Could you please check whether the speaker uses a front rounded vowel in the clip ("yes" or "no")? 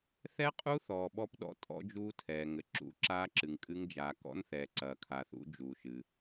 no